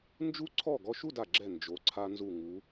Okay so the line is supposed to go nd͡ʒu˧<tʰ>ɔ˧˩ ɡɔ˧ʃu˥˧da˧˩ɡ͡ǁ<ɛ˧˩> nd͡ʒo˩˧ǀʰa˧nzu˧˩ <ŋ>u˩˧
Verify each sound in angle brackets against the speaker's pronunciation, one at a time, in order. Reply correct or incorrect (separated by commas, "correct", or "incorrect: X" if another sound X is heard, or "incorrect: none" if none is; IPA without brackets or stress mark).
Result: incorrect: ǀʰ, correct, correct